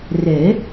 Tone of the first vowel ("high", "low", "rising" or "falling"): rising